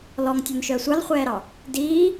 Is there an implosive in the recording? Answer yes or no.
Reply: no